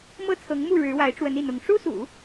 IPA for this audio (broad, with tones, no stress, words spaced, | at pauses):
mɤ˥˩t͡sʰɤ˧˥ŋmu˥˩ ɻɻ̩˧˥wa˧˥ɪ̯ʈ͡ʂwə˧˥n i˥˩n̪ʊ˧˥ŋ ʂu˥sṵ˨˩˦